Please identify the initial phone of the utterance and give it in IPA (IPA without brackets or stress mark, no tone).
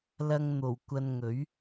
l